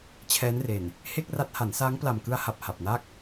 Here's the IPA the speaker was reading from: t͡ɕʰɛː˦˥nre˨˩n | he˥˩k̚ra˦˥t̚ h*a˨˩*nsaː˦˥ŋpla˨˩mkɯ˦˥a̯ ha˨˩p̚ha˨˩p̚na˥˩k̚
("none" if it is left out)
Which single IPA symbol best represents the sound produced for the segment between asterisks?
a˩˦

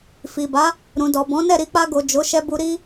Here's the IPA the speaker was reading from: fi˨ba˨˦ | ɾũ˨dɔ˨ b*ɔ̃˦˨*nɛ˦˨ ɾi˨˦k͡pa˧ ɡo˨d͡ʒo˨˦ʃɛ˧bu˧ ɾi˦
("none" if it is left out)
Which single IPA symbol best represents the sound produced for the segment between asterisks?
ɔ̃˨˦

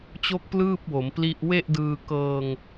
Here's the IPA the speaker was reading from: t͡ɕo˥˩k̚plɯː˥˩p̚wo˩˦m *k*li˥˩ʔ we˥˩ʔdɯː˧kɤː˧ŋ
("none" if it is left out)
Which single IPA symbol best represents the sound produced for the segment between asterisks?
p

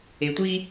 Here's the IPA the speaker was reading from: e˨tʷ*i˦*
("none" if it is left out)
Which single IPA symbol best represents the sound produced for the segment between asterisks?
i˦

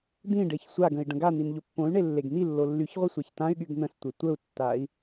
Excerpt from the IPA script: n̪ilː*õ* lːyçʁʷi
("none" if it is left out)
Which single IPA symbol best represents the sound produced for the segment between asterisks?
o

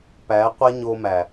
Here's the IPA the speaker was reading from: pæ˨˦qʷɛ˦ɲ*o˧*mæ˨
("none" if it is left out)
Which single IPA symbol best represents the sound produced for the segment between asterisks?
o˧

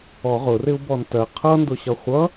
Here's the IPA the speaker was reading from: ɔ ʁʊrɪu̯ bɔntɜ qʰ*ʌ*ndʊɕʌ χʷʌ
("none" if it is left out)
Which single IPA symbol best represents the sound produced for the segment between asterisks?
ʌ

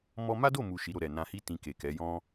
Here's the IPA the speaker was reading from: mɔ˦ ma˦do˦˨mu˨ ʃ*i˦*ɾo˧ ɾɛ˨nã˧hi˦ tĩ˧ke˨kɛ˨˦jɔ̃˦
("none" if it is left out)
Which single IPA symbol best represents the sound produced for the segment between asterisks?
i˨˦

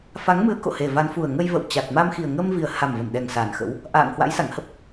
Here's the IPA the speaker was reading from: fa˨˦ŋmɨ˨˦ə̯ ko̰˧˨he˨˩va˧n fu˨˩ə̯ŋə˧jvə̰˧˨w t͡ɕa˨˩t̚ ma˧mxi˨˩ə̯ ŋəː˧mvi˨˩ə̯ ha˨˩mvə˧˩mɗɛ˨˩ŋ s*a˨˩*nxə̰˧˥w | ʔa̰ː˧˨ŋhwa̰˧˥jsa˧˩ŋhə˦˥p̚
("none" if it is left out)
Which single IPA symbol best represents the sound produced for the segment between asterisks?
a˨˩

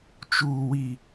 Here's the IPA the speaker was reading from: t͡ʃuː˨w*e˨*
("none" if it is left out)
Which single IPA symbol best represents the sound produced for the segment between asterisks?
i˨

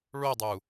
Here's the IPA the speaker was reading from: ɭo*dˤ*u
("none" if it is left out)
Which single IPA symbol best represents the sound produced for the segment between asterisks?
dˤ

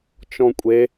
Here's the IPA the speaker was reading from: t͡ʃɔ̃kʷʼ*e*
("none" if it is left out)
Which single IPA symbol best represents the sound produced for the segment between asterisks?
e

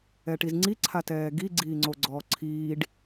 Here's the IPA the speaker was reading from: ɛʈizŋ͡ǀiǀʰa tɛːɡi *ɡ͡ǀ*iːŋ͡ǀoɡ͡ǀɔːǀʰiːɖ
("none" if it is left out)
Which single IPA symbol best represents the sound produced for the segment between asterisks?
ɡ͡ǀ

